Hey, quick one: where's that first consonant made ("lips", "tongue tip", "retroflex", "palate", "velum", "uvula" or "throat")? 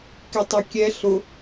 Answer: velum